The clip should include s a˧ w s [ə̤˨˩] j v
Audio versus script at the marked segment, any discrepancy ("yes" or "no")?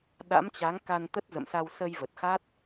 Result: yes